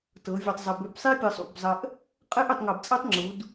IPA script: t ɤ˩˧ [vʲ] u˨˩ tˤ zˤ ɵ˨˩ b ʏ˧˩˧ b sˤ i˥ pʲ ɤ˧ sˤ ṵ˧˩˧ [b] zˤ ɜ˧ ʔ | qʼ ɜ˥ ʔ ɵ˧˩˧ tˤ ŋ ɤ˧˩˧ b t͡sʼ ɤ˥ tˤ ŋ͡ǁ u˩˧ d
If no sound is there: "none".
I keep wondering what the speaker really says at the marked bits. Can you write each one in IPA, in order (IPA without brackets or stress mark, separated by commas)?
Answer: vʲ, b